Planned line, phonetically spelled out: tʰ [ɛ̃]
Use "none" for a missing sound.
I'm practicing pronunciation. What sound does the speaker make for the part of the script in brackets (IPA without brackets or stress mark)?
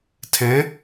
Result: ɛ̃